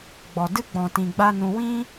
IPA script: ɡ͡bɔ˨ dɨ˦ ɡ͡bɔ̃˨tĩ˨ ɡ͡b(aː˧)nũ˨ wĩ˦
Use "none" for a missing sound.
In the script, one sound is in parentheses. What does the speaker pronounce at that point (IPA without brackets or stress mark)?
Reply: a˧